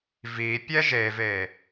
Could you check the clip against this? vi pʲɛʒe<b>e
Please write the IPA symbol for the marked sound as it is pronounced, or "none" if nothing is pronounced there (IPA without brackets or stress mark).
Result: v